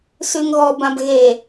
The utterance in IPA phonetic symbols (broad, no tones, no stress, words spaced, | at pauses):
sʉŋɣɔbãb ɣe